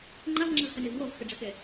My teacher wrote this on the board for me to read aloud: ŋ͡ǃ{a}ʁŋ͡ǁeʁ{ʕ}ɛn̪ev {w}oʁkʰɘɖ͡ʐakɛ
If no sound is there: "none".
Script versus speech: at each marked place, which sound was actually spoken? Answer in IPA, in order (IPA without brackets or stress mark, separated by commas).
a, h, w